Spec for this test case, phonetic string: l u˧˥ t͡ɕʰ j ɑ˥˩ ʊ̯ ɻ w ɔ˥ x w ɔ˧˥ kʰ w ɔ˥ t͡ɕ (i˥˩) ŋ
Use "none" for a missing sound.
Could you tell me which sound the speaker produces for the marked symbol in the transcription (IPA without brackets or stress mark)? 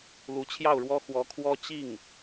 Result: i˥˩